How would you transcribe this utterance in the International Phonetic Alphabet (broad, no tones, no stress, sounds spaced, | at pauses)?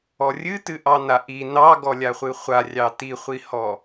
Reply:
ɔ rʲ ɨ t ɨ ʔ ɑ n a ʔ i n ɑ ɡ ɔ lʲ a χʷ ɨ χʷ a rʲ ɑ t i χʷ i h ɔ